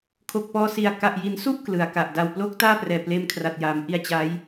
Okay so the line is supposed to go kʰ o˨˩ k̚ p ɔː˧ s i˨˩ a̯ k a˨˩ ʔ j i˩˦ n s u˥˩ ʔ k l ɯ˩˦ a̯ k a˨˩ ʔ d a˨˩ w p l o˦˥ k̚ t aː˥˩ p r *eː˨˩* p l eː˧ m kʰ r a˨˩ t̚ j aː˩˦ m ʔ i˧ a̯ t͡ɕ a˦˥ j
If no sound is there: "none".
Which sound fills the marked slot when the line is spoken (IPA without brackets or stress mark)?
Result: ɛː˨˩